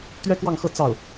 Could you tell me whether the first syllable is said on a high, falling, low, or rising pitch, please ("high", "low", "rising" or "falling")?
high